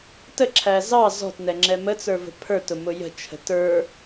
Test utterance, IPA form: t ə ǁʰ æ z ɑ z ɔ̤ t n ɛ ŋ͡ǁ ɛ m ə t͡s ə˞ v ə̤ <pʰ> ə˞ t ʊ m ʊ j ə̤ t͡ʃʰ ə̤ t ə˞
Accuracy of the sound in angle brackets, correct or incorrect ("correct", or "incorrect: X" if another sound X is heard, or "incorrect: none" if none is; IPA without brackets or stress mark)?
correct